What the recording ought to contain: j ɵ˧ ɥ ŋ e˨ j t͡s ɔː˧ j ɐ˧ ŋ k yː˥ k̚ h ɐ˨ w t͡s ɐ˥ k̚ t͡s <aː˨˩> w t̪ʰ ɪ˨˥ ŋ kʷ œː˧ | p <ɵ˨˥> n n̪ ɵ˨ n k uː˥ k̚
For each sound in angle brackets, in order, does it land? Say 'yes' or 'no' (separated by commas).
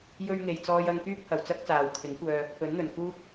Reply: no, yes